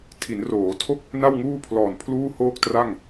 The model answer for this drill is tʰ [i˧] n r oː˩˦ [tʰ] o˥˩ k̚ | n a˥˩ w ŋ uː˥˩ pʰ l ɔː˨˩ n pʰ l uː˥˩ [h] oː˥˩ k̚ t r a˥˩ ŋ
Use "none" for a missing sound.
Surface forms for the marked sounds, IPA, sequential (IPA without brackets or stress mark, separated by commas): i˩˦, tʰ, h